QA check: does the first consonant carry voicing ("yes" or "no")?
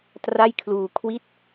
no